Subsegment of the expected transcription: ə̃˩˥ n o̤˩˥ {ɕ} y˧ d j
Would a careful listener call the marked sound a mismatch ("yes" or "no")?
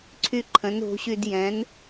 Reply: no